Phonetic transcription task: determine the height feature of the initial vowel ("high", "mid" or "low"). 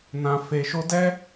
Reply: low